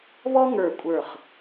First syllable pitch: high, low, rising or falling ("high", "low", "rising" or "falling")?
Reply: high